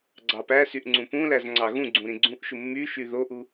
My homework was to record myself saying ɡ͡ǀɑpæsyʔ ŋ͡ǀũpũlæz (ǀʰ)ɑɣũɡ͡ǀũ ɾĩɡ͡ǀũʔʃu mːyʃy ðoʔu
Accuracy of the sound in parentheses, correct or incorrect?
incorrect: ŋ͡ǀ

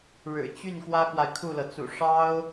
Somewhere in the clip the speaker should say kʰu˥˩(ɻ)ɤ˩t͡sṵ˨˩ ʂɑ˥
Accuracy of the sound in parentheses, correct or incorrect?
incorrect: l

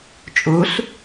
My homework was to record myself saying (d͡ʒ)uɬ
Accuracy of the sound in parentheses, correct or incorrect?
incorrect: t͡ʃʼ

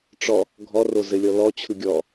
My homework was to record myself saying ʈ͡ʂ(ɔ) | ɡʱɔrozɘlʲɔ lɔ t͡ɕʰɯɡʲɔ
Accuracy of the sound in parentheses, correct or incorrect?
correct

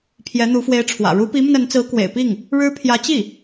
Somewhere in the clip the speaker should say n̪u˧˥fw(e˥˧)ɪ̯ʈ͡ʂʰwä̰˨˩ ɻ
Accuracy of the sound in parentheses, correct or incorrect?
incorrect: e˧˥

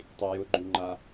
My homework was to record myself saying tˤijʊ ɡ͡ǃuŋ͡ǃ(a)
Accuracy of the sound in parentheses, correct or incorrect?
correct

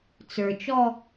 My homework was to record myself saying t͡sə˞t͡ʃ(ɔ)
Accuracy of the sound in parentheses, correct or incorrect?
correct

